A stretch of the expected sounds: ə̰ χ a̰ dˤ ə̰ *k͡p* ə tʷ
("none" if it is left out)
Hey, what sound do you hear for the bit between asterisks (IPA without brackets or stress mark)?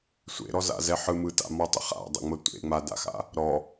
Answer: ŋ͡m